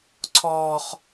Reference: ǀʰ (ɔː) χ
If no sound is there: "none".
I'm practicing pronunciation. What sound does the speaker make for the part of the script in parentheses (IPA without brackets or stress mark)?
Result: ɔː